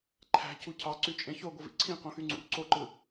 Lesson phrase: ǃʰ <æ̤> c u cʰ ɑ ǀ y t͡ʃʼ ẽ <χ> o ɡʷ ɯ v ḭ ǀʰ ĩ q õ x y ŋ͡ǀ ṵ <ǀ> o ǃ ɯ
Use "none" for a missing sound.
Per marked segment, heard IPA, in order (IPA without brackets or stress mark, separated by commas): æ̤, ç, ǀ